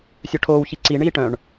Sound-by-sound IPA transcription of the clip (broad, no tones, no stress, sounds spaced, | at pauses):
sʲ œ ʈʰ oː w ç i ǀ i ɳ iː ʈ œ̃ ɳ